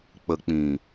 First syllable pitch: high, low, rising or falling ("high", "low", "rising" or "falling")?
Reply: low